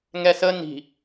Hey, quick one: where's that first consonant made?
velum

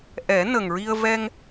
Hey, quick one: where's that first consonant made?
throat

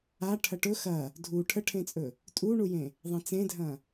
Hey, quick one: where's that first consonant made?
retroflex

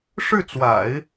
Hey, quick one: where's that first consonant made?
retroflex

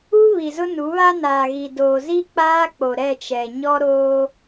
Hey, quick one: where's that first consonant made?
lips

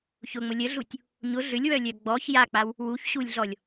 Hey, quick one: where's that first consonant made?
palate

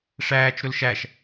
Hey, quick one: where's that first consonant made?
retroflex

